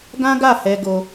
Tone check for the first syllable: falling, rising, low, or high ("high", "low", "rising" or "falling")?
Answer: high